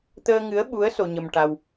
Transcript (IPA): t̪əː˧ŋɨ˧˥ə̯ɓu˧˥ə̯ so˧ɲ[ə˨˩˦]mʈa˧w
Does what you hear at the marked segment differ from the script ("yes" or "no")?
yes